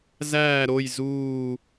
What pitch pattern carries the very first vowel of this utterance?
falling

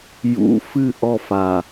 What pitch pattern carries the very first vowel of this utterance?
rising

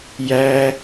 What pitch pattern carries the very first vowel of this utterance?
high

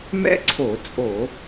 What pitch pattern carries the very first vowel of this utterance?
high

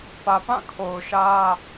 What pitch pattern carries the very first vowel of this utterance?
low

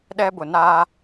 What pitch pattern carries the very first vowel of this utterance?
high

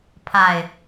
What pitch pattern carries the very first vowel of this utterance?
low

